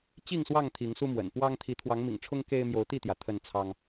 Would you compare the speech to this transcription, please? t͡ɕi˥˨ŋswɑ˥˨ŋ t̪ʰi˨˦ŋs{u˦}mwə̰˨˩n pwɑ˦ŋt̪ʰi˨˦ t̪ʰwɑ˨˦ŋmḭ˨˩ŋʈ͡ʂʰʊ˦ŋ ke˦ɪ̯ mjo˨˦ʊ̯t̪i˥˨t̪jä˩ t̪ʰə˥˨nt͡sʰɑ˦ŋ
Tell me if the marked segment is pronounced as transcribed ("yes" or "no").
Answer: yes